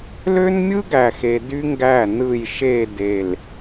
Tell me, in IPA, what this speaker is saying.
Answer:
l ø˦ n mʲ ɯ˦ ɡ æ˨ x e˨ d y˦ ŋ ɡ æ˦˨ n ɯ˦˨ j ʃ e˦˨ d e˨ l

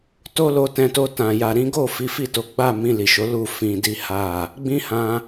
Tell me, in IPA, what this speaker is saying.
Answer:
t o˦ l o˧ t ɛ̃˧ t o˧ t ã˨ j a˨ ɾ ĩ˨˦ ɡ o˦˨ f i˨˦ f i˦˨ t o˨˦ ɡ͡b a˦˨ m ĩ˧ l i˨ ʃ o˨˦ l u˦˨ f ĩ˧ d i˦ h a˦˨ | ɡ͡b ĩ˦ h ã˧

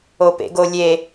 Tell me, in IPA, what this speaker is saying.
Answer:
o p ḛ ɡ o lʲ e

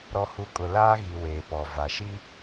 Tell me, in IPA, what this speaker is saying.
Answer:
ɾ ɔ˨ h u˨ kʼ ʊ˨ l aː˦ ɣ i˨ w eː˨ p ɔ˨ v a˨ ʃ i˦

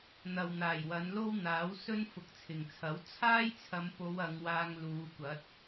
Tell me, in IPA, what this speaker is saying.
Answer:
n̪ ɐ˨ w n̪ aː˨˩ j w ɐ˨˧ n l o˥ w n̪ aː˨˥ w s ɵ˥ n f ʊ˨˥ k̚ t͡sʰ ɪ˨˩ ŋ t͡sʰ ɐ˨˥ w t͡sʰ aː˥ j t͡sʰ ɐ˨˧ m p o˨˧ w ɐ˨˧ ŋ w aː˧ ŋ l uː˨˧ kʷ ɐ˨˥ t̚

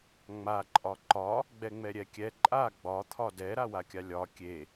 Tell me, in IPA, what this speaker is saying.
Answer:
ŋ͡m a ǃʼ ɒ ǃ ɒ | ɡ͡b ɛ ŋ͡m ɛ ɾʲ ɛ kʲ ɛ ǃʼ a ɡ͡b ɒ t̪ʰ ɒ d ɛ ɾ a w a kʲ a lʲ ɒ kʲ e

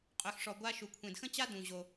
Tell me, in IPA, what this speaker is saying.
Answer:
qʼ ø˨ x ʂ ɔ˨ ɡʷ a˥ ʃ u˨ kʷʰ ẽ˨ d x ə̃˥ t͡ɕ a˥ d ũ˨ ʑ o˨

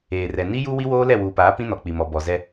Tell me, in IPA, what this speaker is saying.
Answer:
eː˨ r ɛ˨ n i˦ j u˦ w i˦ w oː˦ l ɛ˦˨ w uː˨ p aː˨˦ p ĩ˦ n ɔ˨ k͡p i˨ m ɔ˨ b ɔ˨ z ɛ˦

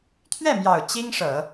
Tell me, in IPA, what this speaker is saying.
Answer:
t̪ʰ ɥ ɛ˥˩ m j ɑ˨˩ ʊ̯ t͡ɕ i˥ ŋ ʂ ɤ˨˩˦

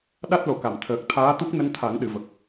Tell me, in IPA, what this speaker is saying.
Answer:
ɗ a˦˥ t̚ l o˨˩˨ k a˨˩˨ m t̪ʰ əː˨˩ k̚ t̪ʰ aː˧˥ t̪ u˦˥ k̚ n ə˧˥ ŋ t̪ʰ a˨˩˦ ŋ ɗ ɨ˨˩˨ v ə˨˩ k̚

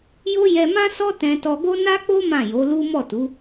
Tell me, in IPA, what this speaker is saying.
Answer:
j o˦ j ɛ˧ m ã˦ s ɔ˦ t ɛ̃˧ t ɔ˧ ɡ o˦ n a˦ k͡p o˦ m ã˦˨ j o˨˦ l u˦ m ɔ˦˨ t u˨˦

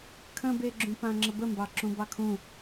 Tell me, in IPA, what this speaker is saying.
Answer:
kʰ ə̃ b e ɡ͡ǁ ũ p ã ŋ͡ǁ ə b ə m b ɑ ǁ ũ b ɑ kʰ ũ

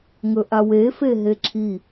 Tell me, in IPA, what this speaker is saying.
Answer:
ŋ ɵ ʔ a w e f e ɦ e ǁʰ i

